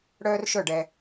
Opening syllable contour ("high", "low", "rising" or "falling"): high